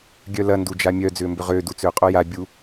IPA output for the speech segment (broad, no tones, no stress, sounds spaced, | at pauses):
ɡʲ œ l ɐ n d u d͡ʒ a mʲ œ d͡z ʏː m b ʏ ʁ ʏː d u t͡s ʏː qʼ o j a bʲ u